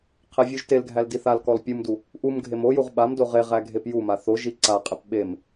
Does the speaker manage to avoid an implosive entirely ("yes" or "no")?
no